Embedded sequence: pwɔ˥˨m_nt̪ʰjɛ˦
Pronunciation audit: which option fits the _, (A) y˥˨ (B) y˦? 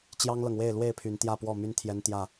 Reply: B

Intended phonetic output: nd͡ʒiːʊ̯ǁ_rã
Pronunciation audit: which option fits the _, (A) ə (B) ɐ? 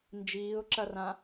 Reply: B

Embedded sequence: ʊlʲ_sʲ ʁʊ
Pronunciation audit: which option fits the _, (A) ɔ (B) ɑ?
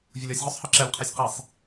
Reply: A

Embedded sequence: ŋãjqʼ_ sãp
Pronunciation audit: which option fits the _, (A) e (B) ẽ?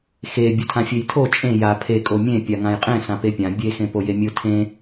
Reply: B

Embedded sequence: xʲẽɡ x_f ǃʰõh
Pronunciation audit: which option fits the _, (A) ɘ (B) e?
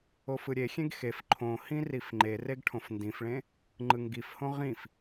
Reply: B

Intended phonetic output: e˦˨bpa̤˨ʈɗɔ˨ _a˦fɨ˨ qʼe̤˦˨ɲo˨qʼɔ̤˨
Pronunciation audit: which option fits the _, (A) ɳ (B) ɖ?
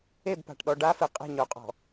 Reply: B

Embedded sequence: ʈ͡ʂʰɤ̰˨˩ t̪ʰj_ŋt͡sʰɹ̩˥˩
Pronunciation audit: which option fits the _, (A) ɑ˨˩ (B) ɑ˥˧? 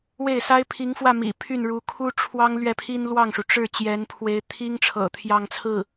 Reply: B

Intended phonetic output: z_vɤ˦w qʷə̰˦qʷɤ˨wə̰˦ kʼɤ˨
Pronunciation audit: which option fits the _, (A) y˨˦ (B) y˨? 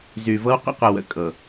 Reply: B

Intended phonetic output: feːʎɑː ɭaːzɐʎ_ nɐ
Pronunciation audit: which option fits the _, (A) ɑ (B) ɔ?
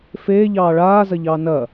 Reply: A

